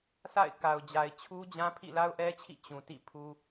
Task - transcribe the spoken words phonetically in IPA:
sʰ a̰˦˨ ɪ̯ k a˨ ʊ̯ d͡ʑ a˨ ɪ̯ t͡ɕʰ u˦ d͡ʑ ã˦ pʰ ḭ˦˨ l a˦ ʊ̯ ʔ ɛ˦ t͡ɕʰ ḭ˦˨ t͡ɕ ũ˨ t ḭ˦˨ pʰ u˦

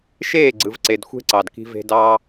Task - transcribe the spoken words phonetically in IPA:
ʃ eː˦˨ ɡ͡ǀ ɯ˨ v ǀ e˨ d xʷ e̤˦ ǀ ɑ˨ d k i̤˧ v e̤˧ d ɑː˦

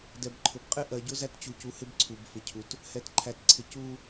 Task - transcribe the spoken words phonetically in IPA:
d ɛ˨ b ǃʰ ʊ˨ b qʼ ɪ˦˨ ʔ ɜ˨ ɟ ʊ˦ z æ˦ t t͡ɕ u˨ c u˨ h ɪ˦ b ǀʰ u˨ b f ɪ˨ cʰ u˨ t | h ɛ˨ t ǃʰ æ˨ t ǀʰ ɪ˨ c u˦

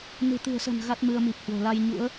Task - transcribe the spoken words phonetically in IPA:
n ɨ̤˨˩ t̪ ɨ̤˨˩ ə̯ s ə̤˨˩ n ɣ a˦˥ t̚ m ɨ˧ ə̯ m i˨˩ p̚ h w o̤˨˩ l a˧ j ɲ ṵ˧˥ ə̯

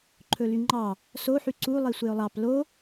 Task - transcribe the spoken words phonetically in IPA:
ǃʰ ɵ l y ŋ͡ǃ ɑ | s o ħ y ǀ u lˠ i sʷ e ʊ̯ lˠ ɑ p l o

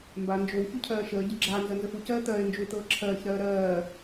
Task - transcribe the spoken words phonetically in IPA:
m b a n d͡ʒ o w ç u cʰ ɜː ʃ əː ɟ ə ɡ͡ǁ a n z ɜ n z ə f u c ɜː t̪ ɜː ɪ̯ n d͡ʒ u ɪ̯ t̪ ɤː ǁʰ ɜː ç ɾ ɜː ɾ ɜː

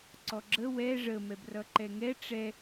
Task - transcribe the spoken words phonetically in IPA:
ǀ ɔ ɡ͡ǁ ə w ɛ ʐ ə m ɛ b r ʌ ǃ ɛ ŋ ɛ ʈ͡ʂ ɛ

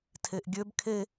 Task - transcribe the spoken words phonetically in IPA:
tʰ e ʔ ɡʲ ø b kʰ e

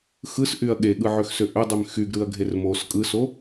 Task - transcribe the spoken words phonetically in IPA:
x ɯ s ʔ y ɐ̯ ɠ e ɠ ɯ ʕ ø x s ø ʔ ø dˤ y m x y ɡ ɾ ɯ ɐ̯ ɡʱ e r m o s kʼ ɯ s o

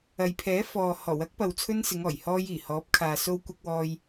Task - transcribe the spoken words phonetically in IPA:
ɐ˨ j pʰ ɛː˨˥ f ɔː˨ h ɔː˨˩ w ɐ˨˥ k̚ p ɐ˨ w t͡sʰ ɵ˧ n s ɪ˨˧ ŋ ɔː˨˩ j h ɔː˧ j iː˨˩ h ɔː˨˥ p̚ kʰ aː˨ s o˧ w kʷ ɐ˧ k̚ w ɔː˧ j

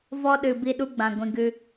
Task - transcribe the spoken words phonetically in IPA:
v ɔ˧ ɗ ɨ˨ b i˦ ɗ u˦ ɡ͡b ã˨ ɡʷ ĩ˧ ɡ ɨ˧

